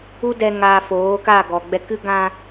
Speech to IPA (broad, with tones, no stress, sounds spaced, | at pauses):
u˦ d ɛ˧ ŋ aː˧ f oː˨˦ k a˦˨ ɡ ɔ˨ ɡ͡b ɛ˧ k ɨ˦ ɡ ã˧